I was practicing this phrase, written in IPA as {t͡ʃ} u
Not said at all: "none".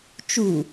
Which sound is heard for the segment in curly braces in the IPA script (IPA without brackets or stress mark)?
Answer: t͡ʃ